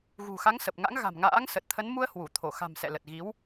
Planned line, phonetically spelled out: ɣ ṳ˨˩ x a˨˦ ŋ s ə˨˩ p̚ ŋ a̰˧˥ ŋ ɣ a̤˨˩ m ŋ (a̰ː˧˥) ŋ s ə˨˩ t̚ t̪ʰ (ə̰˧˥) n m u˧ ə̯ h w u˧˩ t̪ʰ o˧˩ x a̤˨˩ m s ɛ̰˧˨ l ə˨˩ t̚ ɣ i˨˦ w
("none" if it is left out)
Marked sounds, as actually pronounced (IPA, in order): a̰ː˧˥, ə˨˦

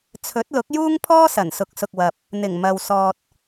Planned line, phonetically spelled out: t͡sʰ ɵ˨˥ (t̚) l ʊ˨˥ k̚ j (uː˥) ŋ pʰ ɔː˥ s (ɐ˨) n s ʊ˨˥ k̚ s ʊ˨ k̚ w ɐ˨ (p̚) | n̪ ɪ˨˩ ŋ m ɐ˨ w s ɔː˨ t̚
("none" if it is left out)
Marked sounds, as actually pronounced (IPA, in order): t̚, uː˥, ɐ˨˩, p̚

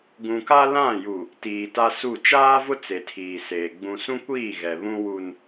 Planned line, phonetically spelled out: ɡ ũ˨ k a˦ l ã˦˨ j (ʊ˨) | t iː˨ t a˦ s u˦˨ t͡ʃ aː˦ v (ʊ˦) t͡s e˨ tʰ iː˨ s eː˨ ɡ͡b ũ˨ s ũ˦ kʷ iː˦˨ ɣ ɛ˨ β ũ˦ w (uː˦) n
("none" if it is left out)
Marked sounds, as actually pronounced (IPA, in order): u˨, ʊ˦, u˦

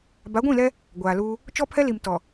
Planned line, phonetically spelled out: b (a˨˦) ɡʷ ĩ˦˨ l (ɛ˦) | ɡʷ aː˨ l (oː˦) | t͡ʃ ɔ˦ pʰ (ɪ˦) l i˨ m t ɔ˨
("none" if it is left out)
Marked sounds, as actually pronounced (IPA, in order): a˨˦, ɛ˦, uː˦, ɛ˦

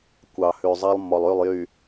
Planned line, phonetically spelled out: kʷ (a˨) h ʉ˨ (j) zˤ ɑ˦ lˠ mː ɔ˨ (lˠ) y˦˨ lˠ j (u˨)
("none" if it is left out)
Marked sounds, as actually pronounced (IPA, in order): ɑ˨, none, lˠ, y˨

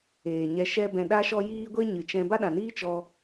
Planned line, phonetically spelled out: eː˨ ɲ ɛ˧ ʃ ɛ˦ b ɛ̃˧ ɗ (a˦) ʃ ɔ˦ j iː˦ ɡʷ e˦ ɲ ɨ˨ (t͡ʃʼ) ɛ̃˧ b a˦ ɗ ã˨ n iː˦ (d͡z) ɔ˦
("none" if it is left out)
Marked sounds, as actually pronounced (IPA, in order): a˦, t͡ʃ, t͡ʃ

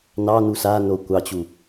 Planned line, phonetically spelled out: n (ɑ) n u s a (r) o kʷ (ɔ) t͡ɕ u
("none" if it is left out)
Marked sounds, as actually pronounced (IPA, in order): ɑ, n, ɑ

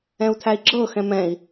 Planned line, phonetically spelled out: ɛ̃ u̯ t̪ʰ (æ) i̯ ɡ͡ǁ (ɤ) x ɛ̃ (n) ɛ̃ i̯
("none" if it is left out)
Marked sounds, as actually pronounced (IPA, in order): æ, ɤ, m

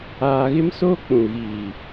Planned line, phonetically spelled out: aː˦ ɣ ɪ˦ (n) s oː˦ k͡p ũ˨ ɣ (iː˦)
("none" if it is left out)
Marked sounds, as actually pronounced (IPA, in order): m, iː˨

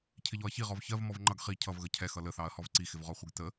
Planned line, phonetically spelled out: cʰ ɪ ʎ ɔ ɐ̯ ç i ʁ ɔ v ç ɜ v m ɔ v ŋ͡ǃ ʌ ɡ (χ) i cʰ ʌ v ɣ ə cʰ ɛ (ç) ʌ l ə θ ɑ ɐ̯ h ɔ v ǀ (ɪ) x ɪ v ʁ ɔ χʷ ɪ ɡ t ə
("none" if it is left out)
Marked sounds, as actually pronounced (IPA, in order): χ, x, i

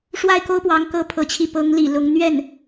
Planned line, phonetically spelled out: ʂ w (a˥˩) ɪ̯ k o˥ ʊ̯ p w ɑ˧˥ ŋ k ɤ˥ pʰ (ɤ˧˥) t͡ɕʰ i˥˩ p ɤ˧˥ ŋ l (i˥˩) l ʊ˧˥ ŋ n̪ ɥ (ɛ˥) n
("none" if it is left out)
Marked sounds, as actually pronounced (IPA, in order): a˥˩, ɤ˧˥, ḭ˨˩, ɛ˥˩

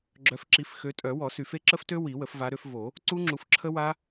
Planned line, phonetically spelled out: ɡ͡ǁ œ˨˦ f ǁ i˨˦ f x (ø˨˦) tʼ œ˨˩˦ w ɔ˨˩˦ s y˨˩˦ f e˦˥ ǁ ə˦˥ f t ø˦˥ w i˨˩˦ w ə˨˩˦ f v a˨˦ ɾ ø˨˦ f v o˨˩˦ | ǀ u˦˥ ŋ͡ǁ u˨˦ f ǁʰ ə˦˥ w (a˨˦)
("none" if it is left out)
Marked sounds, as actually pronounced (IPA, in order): ø˨˦, a˦˥

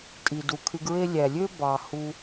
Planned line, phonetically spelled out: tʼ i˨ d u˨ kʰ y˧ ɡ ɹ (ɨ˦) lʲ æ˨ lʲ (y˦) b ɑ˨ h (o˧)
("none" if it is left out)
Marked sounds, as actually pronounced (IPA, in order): e˦, ø˦, u˧

